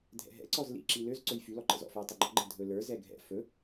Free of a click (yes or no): no